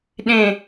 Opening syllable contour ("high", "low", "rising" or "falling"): low